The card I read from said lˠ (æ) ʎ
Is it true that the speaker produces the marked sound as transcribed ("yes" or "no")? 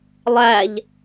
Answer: yes